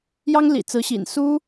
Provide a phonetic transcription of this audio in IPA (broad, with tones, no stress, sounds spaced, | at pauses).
j ɑ˥ ŋ l ḭ˨˩ t͡s ɹ̩˧˥ ɕ ḭ˨˩ n s u˥